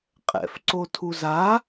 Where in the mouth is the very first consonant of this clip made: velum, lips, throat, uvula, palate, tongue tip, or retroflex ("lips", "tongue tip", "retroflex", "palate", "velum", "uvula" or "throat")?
uvula